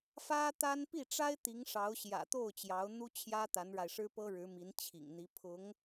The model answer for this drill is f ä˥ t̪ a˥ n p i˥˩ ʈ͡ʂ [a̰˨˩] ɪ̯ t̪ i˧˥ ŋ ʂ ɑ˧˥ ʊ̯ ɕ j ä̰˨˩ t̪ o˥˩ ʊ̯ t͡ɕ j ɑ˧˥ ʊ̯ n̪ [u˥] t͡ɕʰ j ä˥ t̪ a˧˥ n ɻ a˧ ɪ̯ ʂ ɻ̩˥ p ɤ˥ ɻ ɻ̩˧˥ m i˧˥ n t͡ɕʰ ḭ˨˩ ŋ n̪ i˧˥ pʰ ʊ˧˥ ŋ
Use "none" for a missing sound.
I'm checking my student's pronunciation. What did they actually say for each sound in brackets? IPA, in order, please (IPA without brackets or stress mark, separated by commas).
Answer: a˥, u˥